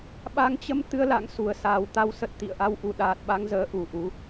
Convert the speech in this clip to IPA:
ɓ a˨˦ ŋ t͡ɕ ə˧ m t̪ ɨ˧ ə̯ l a̰˧˨ ŋ s u˨˩ ə̯ s aː˨˩ w t̪ a˨˦ w s ə˨˩ t̚ t̪ ḭ˧˨ ə̯ ʔ a˧ w ʔ u˨˩ ɗ aː˨˩ t̚ ɓ a˧ ŋ z əː˨˦ ʔ u˨˩ ʔ u˨˦

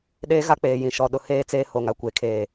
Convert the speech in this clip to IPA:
ɗ eː˦ ɣ a˦ k͡p eː˨ j ĩ˨ ʃ ɔ˨ ɗ ʊ˨ h eː˦ t͡s eː˦ h o˨ ŋ a˦ kʷ e˨ kʰ eː˨

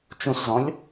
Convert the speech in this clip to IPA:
t͡ʃ ũ s z ɔ̃ lʲ

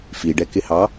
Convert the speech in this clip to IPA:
f i ɖ ɛ k ɪ h ɑ

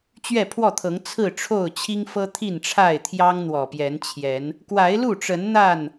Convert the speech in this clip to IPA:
t͡ɕ ɥ ɛ˥˨ pʰ w ɔ˥˨ t̪ʰ ɤ˨˦ ŋ t͡sʰ ɹ̩˥˨ ʈ͡ʂʰ o˥˨ ʊ̯ t͡ɕʰ i˦ ŋ f ɤ˦ t̪ʰ i˥˨ n ʈ͡ʂʰ a˥˨ ɪ̯ t̪ʰ j ɑ˦ ŋ n̪ w ɔ˨˩ p j ɛ˨˦ n t͡ɕʰ j ɛ˨˦ n | k w a˨˦ ɪ̯ l u˥˨ ʈ͡ʂ ə˨˦ n n̪ a˥˨ n

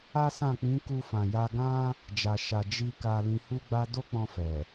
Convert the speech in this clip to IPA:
a˦ s ã˦˨ k͡p ĩ˨˦ k u˧ f ã˨ j a˧ ɡ ã˦ | d͡ʒ a˨ ʃ a˨ d͡ʒ i˧ k a˧ l ĩ˧ h u˦ ɡ͡b a˦ d o˦ k͡p ɔ̃˧ f ɛ˨

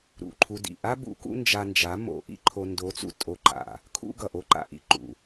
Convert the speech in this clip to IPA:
ɾ ṵ˨ ǃʰ u˧ d ḭ˨ ʔ a˦ b ṵ˨˦ k ṵ˦ n d͡ʒ a˧ n d͡ʒ a˨˦ m o̰˧ ʔ ḭ˦ ǃʰ o˧ n d o˨˦ t͡s ṵ˨ tʼ o˧ ǃ a̰˨ | kʰ ṵ˦ ɡ ʌ˨ ʔ o˧ ǃ a̰˨ ʔ ḭ˧ ǃ ṵ˨

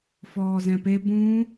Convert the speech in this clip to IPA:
f ɔː z ɛ̃ p e b ũ

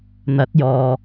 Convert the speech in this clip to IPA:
n̪ ɐ˨˥ t̚ j ɔː˨

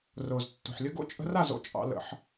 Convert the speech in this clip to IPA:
r ʊː˨ z tː o̤˨ ħ lʲ ə˦ ɡ o̰˦ t͡ʃʼ ə̤˧ r a˦˨ z o̰˦ t͡ʃʼ ɑ̰˧ l ə̰˧ ħ

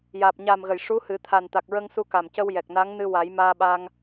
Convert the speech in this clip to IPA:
j aː˨˩ p̚ ɲ aː˨˩ m ɣ ə˨˩˨ j ʂ u˧˥ h ɨ˨˩˦ t̪ʰ a˨˩ n t̪ a˨˩ k̚ ɹ ə˧ ŋ s u˧ k a˨˩ m c ə˧ w j ɛ˨˩ k̚ n a˧˥ ŋ n ɨ˧ w a˨˩˦ j m aː˧ ɓ a˧ ŋ

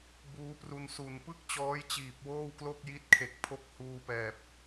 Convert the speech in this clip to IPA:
b uː˦˥ p r u˧ n s u˨˩ n p ɯ˥˩ k̚ t͡ɕ ɔː˦˥ j t͡ɕ iː˨˩ p̚ w oː˥˩ w k l o˥˩ k̚ j i˦˥ t̚ kʰ e˨˩ k̚ pʰ o˦˥ k̚ h uː˧ p ɛː˨˩ p̚

